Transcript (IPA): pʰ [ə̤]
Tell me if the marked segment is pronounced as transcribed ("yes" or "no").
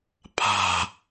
no